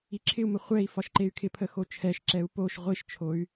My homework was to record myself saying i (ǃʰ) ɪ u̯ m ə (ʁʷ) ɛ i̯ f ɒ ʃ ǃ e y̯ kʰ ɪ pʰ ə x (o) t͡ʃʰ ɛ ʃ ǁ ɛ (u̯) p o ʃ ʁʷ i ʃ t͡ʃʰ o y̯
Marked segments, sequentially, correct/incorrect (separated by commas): incorrect, incorrect, correct, correct